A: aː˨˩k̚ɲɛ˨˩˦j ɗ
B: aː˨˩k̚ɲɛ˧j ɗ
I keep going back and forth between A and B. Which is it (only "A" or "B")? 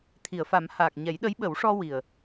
A